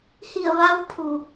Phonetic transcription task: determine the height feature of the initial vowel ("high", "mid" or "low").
high